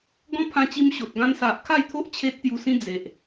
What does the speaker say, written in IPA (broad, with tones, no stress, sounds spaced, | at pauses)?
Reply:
ɡ ɔ̃˦ pʰ ã˧ t͡ɕ i˧ m ɕ o˨ t̚ ɡ ã˦ n s a˨ ʔ kʰ a˥˧ j t̪ʰ o˦ ʔ t͡ɕʰ e˦ t̚ t̪ j u˧ s ĩ˦ d͡z e˨ ʔ